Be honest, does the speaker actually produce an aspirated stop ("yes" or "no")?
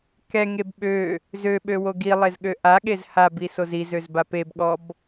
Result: no